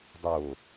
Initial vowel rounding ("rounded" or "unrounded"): rounded